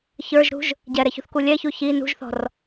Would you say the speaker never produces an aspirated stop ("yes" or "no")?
yes